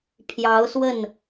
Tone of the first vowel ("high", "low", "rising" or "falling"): rising